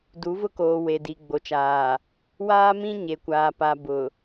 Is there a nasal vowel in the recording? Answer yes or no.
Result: yes